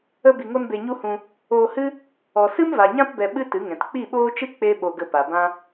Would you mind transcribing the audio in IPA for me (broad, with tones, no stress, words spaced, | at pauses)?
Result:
ə˧bi˨ŋo˧n be˧ɲu˦hũ˧ | oː˧hɨ˦ | ɔ˨sɨ˦mva˨ɲã˦p bɛ˧ ɓɨ˦ tɨ˨˦ŋɛ̃˨t k͡pi˦˨ɓoː˦t͡ʃɨ˦ k͡pe˦ ɓo˧ɡə˧pa˨bã˦